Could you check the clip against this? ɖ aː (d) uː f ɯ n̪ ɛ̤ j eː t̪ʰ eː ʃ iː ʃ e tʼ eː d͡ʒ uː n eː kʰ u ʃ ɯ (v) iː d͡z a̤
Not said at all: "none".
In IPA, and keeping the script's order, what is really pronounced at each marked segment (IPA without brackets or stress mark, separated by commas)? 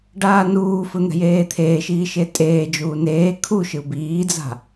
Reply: n, b